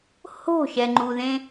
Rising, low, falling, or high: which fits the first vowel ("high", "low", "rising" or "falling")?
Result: falling